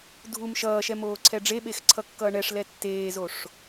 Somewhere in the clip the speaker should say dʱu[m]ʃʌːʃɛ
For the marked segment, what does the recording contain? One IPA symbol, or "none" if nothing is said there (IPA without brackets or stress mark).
m